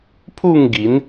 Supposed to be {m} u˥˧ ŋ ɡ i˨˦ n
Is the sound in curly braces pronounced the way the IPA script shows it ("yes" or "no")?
no